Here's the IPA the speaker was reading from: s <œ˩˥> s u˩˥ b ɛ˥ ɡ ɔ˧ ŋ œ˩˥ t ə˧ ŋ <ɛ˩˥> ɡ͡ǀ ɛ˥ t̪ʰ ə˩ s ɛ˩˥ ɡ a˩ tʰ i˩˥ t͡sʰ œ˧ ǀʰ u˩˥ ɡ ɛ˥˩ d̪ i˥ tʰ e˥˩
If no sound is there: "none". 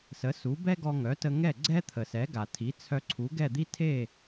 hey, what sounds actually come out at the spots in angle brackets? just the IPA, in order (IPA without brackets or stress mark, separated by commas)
ə˩˥, ɛ˥˩